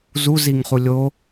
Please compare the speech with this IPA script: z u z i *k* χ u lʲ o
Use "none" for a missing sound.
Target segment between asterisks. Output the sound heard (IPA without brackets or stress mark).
ŋ